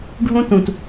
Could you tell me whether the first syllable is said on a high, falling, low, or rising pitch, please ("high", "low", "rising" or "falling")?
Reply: high